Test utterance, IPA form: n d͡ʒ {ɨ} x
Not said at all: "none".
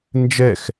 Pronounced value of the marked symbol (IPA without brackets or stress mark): ɛ